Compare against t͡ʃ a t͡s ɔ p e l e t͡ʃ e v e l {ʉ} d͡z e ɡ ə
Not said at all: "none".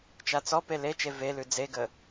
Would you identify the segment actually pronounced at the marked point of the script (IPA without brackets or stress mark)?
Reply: ʉ